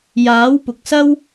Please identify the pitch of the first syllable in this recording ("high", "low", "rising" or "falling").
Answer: rising